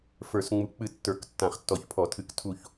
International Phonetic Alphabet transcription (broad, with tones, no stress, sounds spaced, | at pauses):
f ə˞˨˩˦ s ŋ͡m u˨˩˦ k͡p ɨ˦˨ tː ə˞˨˩˦ k tː ã˨˩˦ χ tː ɔ˨˩˦ ç pʰ ɔ˨˩˦ tʰ ɨ˨˩˦ k tʰ u˦˨ ç